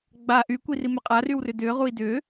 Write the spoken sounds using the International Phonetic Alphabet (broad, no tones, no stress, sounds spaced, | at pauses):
ɡ͡b a ʔ y kʷ i r i m ʏ qʼ a r y w r ʏ d ʏː ʁ u i̯ d ʏ